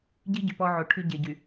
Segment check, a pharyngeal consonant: present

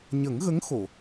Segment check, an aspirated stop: absent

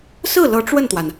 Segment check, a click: absent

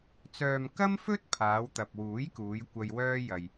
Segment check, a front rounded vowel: present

